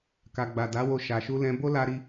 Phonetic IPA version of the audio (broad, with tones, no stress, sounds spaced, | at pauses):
k a˨ ɡ͡b a˨ d a˨˦ w o˧ ʃ a˨ ʃ u˧ l ɛ̃˧ b o˦ l a˦ ɾ i˦